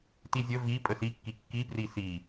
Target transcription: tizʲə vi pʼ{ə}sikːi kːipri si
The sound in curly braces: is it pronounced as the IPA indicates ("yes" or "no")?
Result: yes